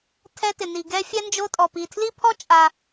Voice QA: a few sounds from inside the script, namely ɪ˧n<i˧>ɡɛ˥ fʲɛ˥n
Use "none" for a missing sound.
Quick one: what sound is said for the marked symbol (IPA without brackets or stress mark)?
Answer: i˧